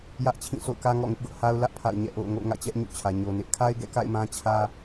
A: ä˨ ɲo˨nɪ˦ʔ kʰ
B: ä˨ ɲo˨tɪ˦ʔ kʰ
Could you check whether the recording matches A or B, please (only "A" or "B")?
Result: A